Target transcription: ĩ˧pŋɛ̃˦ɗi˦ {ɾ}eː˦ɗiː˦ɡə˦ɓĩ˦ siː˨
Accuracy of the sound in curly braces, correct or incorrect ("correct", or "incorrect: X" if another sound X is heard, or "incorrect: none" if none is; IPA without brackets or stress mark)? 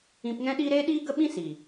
correct